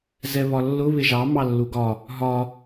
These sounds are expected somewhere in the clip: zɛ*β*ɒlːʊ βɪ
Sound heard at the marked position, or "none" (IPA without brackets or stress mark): β